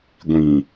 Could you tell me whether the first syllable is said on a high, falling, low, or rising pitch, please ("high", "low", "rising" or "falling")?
low